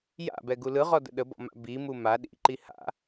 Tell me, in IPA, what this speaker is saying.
ja̰bɛɡu lɯʁɔdə̰ ɗəbɔ̰ma̰ bimu ma ɗḭǃi ha̰

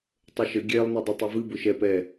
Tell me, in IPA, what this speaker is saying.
tˤəʃə ɡʲɛlˠ nedˤɨtˤɛvɨ bʊʃɛp ɛ

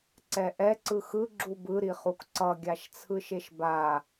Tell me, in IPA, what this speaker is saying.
ǀɛʔɛ ǀɯxɯ ɡ͡ǁubɯ ɾiχukǀʌ ɡʲaʃt͡sʰɯʃeʃba

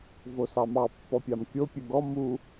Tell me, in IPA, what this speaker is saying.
vosɑmɑ pːɔpʲɑmkʲo pʲuɡɔ mu

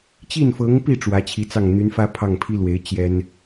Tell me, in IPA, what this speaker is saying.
t͡ɕi˥˩nfɤ˧˥ŋpi˥˩ ʈ͡ʂwä˧˥t͡ɕʰi˧˥t͡sɑ˥˩ŋ n̪y˧˥nfä˥ pʰɑ˥˩ŋpʰi˥lwe˧˥ɪ̯ t͡ɕjɛ˥n

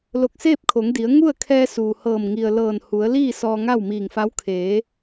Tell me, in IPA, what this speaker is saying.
lo˧˩k̚seː˥˨p̚kʰo˩˧ŋdi˩˧ə̯ ŋu˥˨ə̯kʰɛː˧ suː˩hɤː˧˩m ŋi˩ə̯lɤː˧˩nhu˩˧ə̯liː˥˨ sɔː˧ŋa˥˨wmiː˧˩ŋfa˧˥w kʰeː˩˧

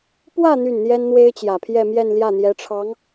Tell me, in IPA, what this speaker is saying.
pwä˥˧ n̪y˥˩nn̪jɛ˥nn̪we˥ɪ̯ t͡ɕjä˨˩pʰjɛ˥˧mjɛ˥˧n ljä˥˩n̪jɛ˧˥ʈ͡ʂʰɑ˧˥ŋ

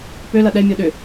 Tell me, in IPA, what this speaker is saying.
pølɐ ɗɛmʲo ɗʏ

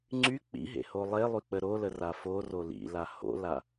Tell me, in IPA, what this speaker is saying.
ŋ͡ǀy k͡pḭɦḛho lˠelˠyk͡pə ɾolə raforo lḭla ho̰la

